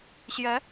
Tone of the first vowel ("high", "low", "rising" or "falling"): rising